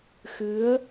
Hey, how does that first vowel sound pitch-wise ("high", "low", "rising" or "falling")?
rising